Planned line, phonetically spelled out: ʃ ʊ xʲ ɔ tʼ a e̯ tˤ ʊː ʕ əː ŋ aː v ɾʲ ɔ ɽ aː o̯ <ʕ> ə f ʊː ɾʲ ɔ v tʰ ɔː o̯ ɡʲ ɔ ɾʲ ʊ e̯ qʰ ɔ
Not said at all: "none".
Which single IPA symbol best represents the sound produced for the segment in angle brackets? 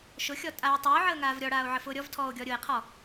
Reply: ʕ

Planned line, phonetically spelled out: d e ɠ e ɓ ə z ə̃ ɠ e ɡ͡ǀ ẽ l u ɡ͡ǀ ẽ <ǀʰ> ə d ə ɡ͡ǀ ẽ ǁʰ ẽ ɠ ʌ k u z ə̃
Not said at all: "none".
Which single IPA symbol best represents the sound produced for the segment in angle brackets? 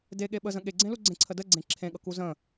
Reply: ǀʰ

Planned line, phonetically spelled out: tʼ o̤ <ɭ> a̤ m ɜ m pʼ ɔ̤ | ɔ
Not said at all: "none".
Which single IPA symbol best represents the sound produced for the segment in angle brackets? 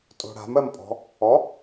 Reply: ɽ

